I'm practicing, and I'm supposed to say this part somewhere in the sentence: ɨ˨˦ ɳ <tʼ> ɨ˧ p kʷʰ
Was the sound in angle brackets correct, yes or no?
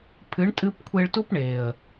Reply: yes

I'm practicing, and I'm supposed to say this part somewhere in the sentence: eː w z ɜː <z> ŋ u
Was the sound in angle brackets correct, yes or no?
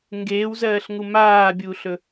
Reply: no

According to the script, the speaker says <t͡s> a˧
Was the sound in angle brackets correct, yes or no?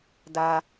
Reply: no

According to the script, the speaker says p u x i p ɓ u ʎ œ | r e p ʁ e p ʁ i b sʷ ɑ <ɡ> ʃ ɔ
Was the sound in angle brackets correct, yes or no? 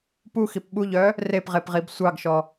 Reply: yes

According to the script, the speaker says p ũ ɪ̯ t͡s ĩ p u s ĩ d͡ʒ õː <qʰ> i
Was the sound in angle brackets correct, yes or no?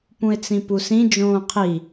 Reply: yes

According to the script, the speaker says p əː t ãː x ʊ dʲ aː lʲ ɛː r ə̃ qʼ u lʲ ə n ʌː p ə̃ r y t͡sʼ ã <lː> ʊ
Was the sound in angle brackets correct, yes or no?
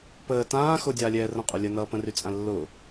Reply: yes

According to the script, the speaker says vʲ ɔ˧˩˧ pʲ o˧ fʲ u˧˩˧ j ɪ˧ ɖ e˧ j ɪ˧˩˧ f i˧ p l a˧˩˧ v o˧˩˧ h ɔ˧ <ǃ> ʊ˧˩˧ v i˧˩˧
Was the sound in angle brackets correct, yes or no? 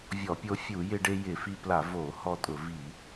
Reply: no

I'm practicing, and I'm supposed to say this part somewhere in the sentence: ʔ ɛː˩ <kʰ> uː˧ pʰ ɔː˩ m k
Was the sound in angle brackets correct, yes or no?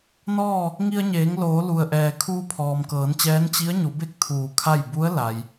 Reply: yes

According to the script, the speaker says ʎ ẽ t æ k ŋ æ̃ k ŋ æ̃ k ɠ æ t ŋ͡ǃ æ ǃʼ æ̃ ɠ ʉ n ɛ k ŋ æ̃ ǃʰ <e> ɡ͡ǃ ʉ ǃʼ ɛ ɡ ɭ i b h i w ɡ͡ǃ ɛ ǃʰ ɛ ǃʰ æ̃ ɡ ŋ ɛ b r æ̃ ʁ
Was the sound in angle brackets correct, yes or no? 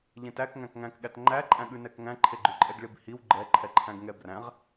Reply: yes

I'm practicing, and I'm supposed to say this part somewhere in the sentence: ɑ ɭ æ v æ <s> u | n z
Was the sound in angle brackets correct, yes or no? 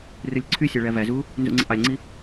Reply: no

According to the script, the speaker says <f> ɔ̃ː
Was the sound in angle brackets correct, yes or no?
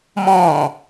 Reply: no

